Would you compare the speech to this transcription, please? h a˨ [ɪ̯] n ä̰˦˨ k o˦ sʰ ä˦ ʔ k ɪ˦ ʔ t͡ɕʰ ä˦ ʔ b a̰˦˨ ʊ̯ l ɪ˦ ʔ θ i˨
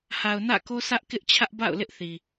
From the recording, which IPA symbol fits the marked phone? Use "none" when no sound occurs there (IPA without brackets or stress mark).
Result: ʊ̯